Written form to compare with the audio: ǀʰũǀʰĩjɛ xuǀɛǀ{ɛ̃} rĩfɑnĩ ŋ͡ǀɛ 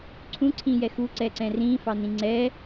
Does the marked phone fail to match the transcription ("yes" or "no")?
no